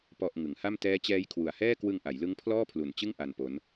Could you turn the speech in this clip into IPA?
pɔ˨˩ʔ ŋɯ˩˦ŋha˥˩m tɛː˦˥t͡ɕɛː˦˥jkʰwu˨˩a̯hɛː˥˩ kwɯ˧ŋʔa˩˦jlɯ˦˥ŋ pʰlɔː˥˩pʰlu˨˩nt͡ɕɯ˥˩ŋ ʔa˧n po˦˥n

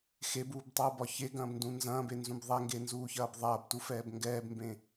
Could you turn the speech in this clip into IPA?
xebuːbtˤuːbɒ çeɡɐ̃ːbndũ nzɐ̃ːbenzũb ðˤɛŋɡenzuːçɐːb ðˤɐːbtufɛːb ŋɡɛːbmbẽ

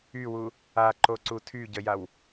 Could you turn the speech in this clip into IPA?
ywu | aǃoǀu tʰyɟəjaw

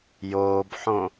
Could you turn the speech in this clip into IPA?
joːbħõ

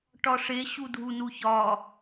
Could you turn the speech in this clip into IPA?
ʈɒʂe ɕudʱunuçɒ

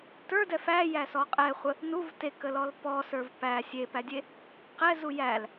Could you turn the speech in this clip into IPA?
tə˞dɛ fæjæsɔ qʼɛχʷə | nuv tekəlɔl pɔsə˞v pæ sʲepædʲe | qɛzu jæl

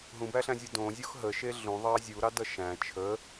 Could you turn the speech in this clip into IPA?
ɦũbæɬæ̃zʲu dõzʲox ɦəʃe ɮũðˤɑ zʲuɾɑdʌ ʃæ̃ t͡ʃʰə

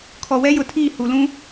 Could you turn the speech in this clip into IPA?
kʰɔ˨wɛ˦jʊ˨tʰiː˦˨ hu˨lũ˦

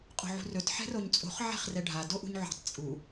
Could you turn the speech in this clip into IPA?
qʼo̤ʕṳrɵt ħɛ̤roɲt͡sʼo̤χ ʕɛ̤χrɛɖʱa doʔṳɲʕṳtˤ t͡sʼu

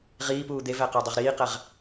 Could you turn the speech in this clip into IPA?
ʁiːpuː d̪evæ qædˤoʁɾiːqæʁ

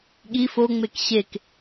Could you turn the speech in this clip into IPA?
ɠi foŋ͡mek ɕek

